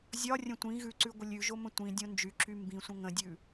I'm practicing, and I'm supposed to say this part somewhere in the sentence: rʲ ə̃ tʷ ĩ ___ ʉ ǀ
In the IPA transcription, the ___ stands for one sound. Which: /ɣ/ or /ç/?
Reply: ɣ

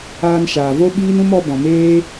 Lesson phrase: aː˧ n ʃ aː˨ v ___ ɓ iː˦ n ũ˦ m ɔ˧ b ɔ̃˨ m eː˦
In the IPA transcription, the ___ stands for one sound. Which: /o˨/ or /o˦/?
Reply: o˦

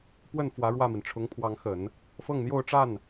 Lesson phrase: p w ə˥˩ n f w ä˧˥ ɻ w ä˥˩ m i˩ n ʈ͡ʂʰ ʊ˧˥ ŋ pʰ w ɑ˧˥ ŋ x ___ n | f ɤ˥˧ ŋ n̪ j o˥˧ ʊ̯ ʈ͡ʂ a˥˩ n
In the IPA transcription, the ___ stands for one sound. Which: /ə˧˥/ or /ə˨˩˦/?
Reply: ə˨˩˦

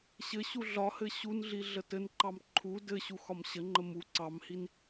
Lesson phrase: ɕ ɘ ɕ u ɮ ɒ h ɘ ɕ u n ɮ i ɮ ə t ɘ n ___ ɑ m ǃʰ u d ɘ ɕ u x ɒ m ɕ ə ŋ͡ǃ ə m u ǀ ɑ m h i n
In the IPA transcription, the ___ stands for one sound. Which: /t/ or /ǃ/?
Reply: ǃ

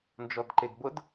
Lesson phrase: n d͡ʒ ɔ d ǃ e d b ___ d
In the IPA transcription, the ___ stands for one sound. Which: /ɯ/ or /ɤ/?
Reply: ɤ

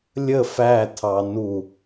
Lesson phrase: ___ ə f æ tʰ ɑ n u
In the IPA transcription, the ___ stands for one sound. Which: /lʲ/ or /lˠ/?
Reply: lʲ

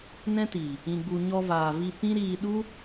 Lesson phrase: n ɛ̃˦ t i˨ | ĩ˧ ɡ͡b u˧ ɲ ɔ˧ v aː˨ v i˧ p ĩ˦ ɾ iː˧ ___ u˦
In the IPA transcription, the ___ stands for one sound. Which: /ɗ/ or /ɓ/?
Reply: ɗ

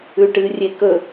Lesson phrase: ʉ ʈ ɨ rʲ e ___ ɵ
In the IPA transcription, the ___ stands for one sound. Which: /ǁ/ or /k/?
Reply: k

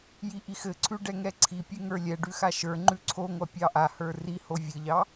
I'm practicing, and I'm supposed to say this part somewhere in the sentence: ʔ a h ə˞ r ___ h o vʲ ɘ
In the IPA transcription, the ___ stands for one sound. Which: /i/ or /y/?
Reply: i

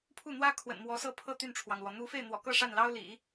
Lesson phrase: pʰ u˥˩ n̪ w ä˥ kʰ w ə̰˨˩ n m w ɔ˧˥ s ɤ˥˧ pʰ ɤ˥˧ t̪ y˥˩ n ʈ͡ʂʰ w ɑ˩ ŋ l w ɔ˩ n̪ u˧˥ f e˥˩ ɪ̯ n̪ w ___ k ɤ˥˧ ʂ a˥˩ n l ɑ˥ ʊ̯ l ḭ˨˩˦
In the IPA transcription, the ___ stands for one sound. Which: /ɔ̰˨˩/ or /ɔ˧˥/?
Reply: ɔ̰˨˩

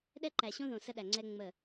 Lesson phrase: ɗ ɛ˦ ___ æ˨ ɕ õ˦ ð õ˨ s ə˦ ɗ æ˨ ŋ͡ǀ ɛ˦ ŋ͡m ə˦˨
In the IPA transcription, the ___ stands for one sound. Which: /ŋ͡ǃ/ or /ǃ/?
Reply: ǃ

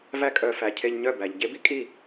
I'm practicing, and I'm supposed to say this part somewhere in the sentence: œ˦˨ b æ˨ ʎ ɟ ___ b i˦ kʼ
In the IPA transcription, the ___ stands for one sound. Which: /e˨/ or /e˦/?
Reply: e˦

